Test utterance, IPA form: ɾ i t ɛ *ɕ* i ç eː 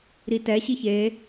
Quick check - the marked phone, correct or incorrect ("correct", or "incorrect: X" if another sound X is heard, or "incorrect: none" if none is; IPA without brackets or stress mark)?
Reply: correct